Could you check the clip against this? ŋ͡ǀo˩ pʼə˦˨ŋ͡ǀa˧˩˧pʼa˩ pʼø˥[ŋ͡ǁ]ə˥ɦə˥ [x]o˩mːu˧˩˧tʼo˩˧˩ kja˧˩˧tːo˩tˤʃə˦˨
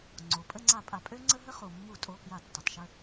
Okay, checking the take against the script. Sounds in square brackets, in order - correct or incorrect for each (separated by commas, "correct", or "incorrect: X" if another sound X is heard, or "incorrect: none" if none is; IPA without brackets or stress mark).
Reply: incorrect: ŋ͡ǀ, incorrect: χ